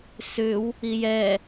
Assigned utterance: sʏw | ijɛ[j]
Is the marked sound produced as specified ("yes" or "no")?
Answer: no